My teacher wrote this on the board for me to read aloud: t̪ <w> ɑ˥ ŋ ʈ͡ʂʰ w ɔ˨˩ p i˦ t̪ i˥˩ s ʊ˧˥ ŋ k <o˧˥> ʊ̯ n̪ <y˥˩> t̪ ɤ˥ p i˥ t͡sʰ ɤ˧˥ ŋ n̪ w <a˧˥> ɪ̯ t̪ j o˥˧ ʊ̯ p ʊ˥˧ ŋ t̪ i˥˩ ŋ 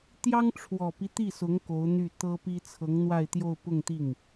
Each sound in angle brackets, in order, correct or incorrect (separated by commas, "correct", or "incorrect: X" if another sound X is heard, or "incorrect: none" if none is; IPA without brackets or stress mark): incorrect: j, correct, correct, incorrect: a˥˧